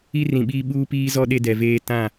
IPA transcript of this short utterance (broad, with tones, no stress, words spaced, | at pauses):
i˦rĩ˨ɓiː˦ ɓuː˦piː˦zɔ˦ ɗe˦dɛ˨veː˦ tã˦˨